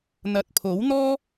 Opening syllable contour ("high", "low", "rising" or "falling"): low